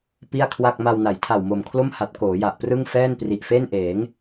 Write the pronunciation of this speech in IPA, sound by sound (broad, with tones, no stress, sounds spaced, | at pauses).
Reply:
p i˥˩ a̯ kʰ w a˥˩ k̚ m a˧ w n a˩˦ j tʰ a˨˩ w m o˨˩ m kʰ l o˥˩ m h a˨˩ t̚ k oː˩˦ j a˨˩ ʔ p r ɯ˥˩ ŋ f ɛː˥˩ n p r i˨˩ ʔ f e˥˩ n ʔ eː˩˦ ŋ